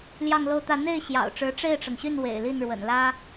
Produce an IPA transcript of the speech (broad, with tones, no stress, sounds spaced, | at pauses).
l j ɑ˥˧ ŋ l o˥˧ ʊ̯ t̪ ä˥˧ n̪ e˥˩ ɪ̯ ɕ j ɑ̰˨˩ ʊ̯ ʈ͡ʂ ɻ̩˧˥ ʈ͡ʂ e˥˩ ɪ̯ ʈ͡ʂ ɤ˩ ŋ ɕ y˥˩ n w ḛ˨˩ ɪ̯ l i˥˩ n ɻ w ə̰˨˩ n l ä˥